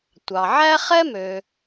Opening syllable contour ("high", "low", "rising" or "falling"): low